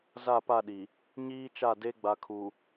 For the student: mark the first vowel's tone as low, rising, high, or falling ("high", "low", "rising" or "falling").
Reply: falling